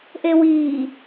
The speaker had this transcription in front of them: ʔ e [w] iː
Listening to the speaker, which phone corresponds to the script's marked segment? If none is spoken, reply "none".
w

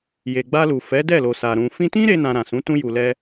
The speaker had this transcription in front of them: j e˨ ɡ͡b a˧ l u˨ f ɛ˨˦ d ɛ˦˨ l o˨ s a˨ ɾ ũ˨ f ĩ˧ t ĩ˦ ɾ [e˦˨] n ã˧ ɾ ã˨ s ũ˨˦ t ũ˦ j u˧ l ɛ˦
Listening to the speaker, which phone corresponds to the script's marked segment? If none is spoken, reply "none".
e˦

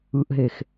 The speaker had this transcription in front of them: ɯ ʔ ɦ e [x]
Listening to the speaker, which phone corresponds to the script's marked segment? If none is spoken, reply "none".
x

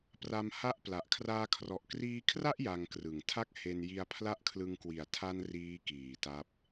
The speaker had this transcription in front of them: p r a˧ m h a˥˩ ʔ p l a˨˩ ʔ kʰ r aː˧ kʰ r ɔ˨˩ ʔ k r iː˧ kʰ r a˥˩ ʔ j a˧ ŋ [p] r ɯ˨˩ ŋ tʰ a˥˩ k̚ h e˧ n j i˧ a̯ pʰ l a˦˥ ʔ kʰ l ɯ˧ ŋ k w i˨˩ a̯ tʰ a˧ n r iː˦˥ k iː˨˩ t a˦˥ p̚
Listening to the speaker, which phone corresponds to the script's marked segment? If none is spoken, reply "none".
k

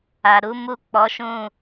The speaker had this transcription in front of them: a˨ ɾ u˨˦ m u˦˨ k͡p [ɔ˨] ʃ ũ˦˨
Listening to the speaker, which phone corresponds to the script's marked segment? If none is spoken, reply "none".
ɔ˨˦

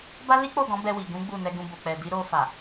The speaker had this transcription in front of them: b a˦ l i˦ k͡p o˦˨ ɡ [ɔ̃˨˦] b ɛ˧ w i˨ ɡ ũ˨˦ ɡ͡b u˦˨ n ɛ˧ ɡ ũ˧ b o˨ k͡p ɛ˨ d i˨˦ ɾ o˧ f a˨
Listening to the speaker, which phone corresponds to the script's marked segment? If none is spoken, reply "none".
ɔ̃˨˦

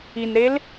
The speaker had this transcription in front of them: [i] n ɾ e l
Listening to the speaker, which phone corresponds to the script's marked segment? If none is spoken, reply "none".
i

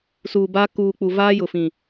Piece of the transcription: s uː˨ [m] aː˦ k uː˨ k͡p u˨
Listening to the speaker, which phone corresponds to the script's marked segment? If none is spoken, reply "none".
b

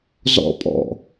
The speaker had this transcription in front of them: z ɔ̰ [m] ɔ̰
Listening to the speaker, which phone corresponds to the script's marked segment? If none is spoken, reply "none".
pʼ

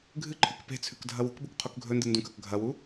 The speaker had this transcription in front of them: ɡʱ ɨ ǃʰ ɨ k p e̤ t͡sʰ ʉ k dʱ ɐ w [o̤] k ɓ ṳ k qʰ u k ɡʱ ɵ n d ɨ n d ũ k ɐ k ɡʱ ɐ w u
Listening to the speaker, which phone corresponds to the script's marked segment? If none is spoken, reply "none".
ṳ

